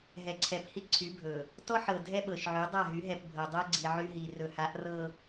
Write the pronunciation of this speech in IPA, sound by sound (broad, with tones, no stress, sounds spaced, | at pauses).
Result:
ɦ ɛ˨ ǀʰ ɛ˨ p h i˦ ǀʰ y˨˦ bʱ ɵ˨ | t ɔ˦ ħ ɤ˨ dʱ ɛ˦ ɓ ɤ˨ ʃ ʕ y˨˦ dˤ a˦˨ ɦ y˨˦ ɦ ɛ˨ p bʱ ɤ˨ dˤ ɤ˦ ɡ͡ǀ i˨ ʕ y˦ ɦ i˨ r ɵ˨ h a˨˦ ʔ r ɤ˨